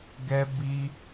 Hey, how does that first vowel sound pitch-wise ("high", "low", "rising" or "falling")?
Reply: high